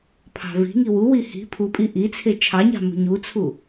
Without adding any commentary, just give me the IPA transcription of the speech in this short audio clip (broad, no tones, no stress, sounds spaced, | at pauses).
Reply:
pʰ ɑ̤ v i̤ ŋ i w u w i h i̤ pʰ u pʼ i ʔ i t͡sʰ e t͡ʃʰ ɑ ɲ ɑ̤ m ṳ ɲ u t͡sʰ u